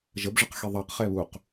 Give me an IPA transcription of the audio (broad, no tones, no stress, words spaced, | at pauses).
ʒəbʐəqxi ðˤɑqχɛ βuq